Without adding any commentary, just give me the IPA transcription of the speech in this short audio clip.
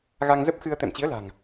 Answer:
ɣa˧ŋzə˦˥p̚xɨ˧ə̯ t̪ɛ̰˧˨mt͡ɕi˨˦ə̯la̤˨˩ŋ

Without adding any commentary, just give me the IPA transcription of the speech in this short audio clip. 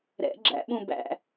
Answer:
ɾɛ̰ ɡ͡ǁæ̰ɓũ bæ̰

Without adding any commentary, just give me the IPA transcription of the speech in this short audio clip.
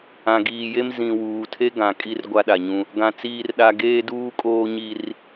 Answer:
ã˨ɡiː˨je˦m zĩ˨wuː˨tʰe˦ ɡã˨kʼi˦r ɡʷa˦ɗa˨ɲũ˦ | ɡã˨ t͡siː˦rɗa˦ ɡeː˦duː˦kʼoː˦ɲi˦r

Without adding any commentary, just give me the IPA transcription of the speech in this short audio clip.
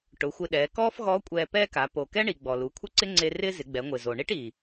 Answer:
ʈʊ˩˧xʷɪ˧ɗɛː˩˧ kɔː˥fɣɔ˧˥ kʷʼɛː˧pɛː˥ka˩˧ po˩kɛ˥ɳi˩ ɡ͡bɔ˩lu˩˧kʷʰɪ˥ǀɪ˥ ŋ͡ǀe˧ rɪː˥zɪ˩˧ɡ͡bɛ˩˧ŋʷɪː˩ zo˩ɳi˥ʈi˩

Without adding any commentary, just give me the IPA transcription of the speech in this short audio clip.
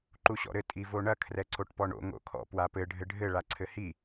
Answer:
ǃuɕɔ̰ɾɘ tʼivoɳɐ kʰrɛǀoʈpɔɳo̰ ŋo̰kʰɔ̰ pwapɘ ɖʱɘɖʱɘ ɭaǀʰɘhi

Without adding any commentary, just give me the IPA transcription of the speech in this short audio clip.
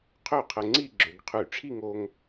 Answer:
qʰø˥˩qʰə˧ŋ͡ǀi˥˧ ɡ͡ǁø˩˧ɡqʰy˧˩˧ʈ͡ʂʰi˥˧ŋo˧ŋ

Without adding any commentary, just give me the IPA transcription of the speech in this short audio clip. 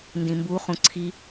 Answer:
ndĩmbu χũǀʰi

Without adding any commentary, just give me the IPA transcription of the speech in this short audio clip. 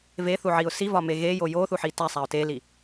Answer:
veθuʕiʊ̯ sivɒme ɣejo joθuħi tæsˤæʊ̯ teli

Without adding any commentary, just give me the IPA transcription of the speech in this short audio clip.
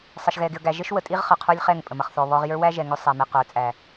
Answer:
sˤʌ˨ʃɣɛ˨ɡɪ˨ə̯ ɡæ˨ ʒə˦ʃwə˨ tʼi˦ʁχʌ˨ qʰə˞˦lʲχɛ˦˨ŋ pʼə˨mʌ˨χθɔ˨βɔ˦ʁ jə˞˦wæ˦ ʒɛ˨ ŋʊ˦ sˤæ˨mɪ˨ qə˞˨t͡sʼæ˨

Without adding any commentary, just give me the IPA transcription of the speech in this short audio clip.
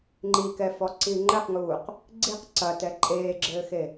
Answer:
ŋ͡ǃikɛfɔǀi ŋ͡ǃɘqŋuːq | ɡ͡ǀiq ǀɐtɛ ǃʼeːɡ͡ǁɘːxe

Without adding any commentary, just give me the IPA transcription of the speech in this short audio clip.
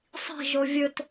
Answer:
sˤi̤ʒo vʲɵt

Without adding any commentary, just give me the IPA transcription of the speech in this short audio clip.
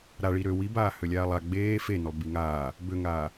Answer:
ɾa ɭiɾø wibaː hølʲaːlˠa ɡ͡beː fenølˠ biŋaː | bøŋaː

